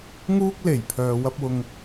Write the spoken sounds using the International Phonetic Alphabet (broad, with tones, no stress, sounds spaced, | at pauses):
ŋ uː˥ k̚ l e˨˩ j pʰ œː˨ w ɐ˧ p̚ w ʊ˨ ŋ